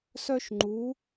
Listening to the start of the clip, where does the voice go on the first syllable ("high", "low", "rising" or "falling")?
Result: high